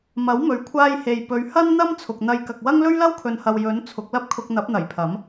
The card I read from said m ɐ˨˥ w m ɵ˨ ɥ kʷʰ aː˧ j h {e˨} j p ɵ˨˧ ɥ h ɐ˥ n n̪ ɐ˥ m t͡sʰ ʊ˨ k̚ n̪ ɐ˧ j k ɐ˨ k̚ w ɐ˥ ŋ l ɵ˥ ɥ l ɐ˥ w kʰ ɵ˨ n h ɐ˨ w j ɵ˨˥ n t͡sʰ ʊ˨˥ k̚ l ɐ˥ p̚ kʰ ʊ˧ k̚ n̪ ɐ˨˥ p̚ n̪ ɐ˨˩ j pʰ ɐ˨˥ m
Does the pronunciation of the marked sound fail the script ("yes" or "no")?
no